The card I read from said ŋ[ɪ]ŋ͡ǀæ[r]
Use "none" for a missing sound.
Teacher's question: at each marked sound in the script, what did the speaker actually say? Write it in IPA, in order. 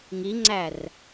i, r

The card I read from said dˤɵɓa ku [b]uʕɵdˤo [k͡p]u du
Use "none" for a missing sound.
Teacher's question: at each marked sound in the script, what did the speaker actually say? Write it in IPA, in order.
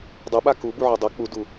b, k͡p

